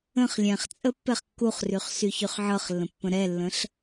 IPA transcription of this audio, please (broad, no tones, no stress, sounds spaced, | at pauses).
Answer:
ə̃ χ lʲ ɛ̃ χ t͡sʼ ə pː ɛ χ kː u χ r y χ s y ç y χ ʕ ɤ χ lː ə̃ pː ə̃ ɾ ɛ lː ə̃ ɬ